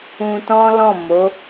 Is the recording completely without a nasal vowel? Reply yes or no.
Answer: no